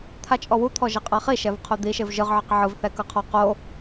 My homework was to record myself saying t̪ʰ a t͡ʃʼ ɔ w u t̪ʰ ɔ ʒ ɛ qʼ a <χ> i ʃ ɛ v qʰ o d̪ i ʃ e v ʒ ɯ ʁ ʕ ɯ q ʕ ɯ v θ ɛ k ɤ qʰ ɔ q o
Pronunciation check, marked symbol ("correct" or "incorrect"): correct